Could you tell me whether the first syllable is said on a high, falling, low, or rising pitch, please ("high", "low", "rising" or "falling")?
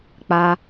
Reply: high